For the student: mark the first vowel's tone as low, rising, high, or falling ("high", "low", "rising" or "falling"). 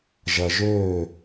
low